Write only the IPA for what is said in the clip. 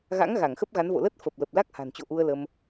ɣa̰˧˥ŋ ɣa˧˩ŋxə˦˥p̚ɣa˨˦n vo̰˧˨lə˦˥t̚fə˨˩p̚ lə˨˩p̚ la˦˥k̚ha̤˨˩nt͡ɕo̰˧˨ ʔu˧ə̯lə˧m

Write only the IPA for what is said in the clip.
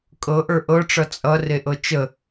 kʼɤʔə˞ ʔɤʈ͡ʂʌ t͡sʼʌ reʔɤt͡ʃə

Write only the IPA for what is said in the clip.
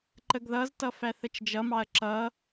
ǃəɡðʌztʌ fæθət͡ʃd͡ʒʌmɑɐ̯ ǁʌ

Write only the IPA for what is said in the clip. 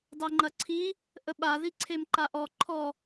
dˤeŋ͡ǃɐǀʰi | ʔəɓaðiǀʰem ǃaʔɔ ǃʰɔ

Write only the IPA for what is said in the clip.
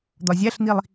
d̪ɒzʲæɬn̪ilˠ

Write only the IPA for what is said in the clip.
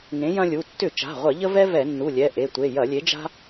ŋẽ˨˥jɐ̃˦lʲu˩˧˩ tːʏ˧˩˧ t͡ʃa̤˩˧˩ʁʷɐ˧˩˧ʎə˦vɛ˦ vɛ˧˩˧nːu˩˧˩lʲɛ˩˧˩ ʔe˩˧˩tʷe˩˧˩ jɐ˧˩˧lʲe˨˥d͡ʒa̤˦

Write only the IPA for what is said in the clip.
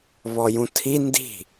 βɔjũtʰi ndi̤

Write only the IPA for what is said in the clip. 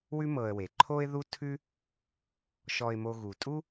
wʉ˦mɤ˨ə̯we˩ ǃʰo˥ɪ̯ðu˥ tʰʉ˥ | ʃɔ˨ɪ̯mo˨ɣu˩ tʼu˥

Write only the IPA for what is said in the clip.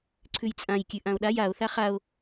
ǀʰʉjt͡sʼãj kʲʉʔão̯ɗaj ao̯ θaχao̯

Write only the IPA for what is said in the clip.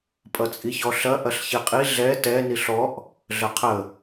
pʼʌt͡sʼiçɔɬɐ ʔɐɬçiqʼi ɮɛ tɛ niɬɔʔ | ɮəqʰə

